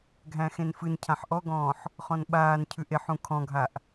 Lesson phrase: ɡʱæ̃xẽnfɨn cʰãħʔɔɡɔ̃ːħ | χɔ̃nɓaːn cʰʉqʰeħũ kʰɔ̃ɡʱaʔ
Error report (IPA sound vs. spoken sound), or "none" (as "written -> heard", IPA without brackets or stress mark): qʰ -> ʔ